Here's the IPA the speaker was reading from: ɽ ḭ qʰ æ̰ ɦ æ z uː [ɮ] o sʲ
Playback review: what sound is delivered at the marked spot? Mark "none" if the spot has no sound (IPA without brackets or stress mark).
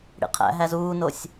n